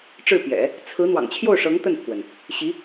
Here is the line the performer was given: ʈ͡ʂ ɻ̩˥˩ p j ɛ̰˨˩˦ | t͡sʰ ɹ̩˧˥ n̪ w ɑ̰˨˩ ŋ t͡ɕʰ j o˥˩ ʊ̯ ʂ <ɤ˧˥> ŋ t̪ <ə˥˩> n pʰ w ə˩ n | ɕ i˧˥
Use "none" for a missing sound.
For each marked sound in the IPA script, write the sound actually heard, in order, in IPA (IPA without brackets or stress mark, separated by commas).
ɤ˧˥, ə˥˩